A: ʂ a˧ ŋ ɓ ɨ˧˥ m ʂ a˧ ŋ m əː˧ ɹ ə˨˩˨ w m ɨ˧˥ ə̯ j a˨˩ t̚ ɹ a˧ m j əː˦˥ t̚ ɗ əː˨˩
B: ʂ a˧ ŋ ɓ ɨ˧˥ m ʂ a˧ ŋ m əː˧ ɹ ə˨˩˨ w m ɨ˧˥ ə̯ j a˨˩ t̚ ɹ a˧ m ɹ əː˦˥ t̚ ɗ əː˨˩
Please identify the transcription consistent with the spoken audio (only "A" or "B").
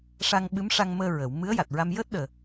A